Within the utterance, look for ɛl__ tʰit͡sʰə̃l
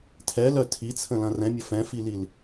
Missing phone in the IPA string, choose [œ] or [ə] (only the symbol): œ